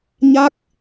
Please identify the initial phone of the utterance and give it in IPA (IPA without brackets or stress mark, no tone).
ɲ